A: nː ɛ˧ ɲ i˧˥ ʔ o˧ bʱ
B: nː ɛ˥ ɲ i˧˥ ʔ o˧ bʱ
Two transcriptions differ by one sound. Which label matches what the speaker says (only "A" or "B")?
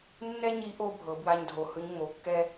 B